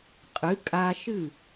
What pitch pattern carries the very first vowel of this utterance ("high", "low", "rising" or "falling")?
rising